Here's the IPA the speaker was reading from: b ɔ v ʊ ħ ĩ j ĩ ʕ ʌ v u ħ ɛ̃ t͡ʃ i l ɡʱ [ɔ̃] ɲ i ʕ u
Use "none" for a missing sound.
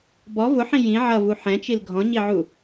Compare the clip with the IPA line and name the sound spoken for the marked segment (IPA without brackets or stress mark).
ɔ̃